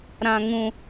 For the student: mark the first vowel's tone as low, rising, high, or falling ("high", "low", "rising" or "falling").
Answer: high